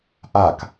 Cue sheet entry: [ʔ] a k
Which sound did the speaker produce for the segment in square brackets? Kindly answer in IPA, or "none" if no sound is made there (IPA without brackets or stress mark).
ʔ